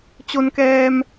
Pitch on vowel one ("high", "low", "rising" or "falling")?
low